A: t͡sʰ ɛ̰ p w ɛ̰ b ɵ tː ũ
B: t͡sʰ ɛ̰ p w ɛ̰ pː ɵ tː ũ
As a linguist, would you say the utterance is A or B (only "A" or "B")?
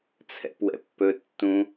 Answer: B